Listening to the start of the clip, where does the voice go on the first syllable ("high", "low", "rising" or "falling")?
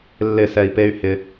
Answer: falling